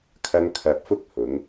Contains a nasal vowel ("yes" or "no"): no